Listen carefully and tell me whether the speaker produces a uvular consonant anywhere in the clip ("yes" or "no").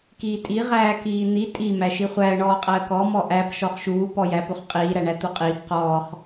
yes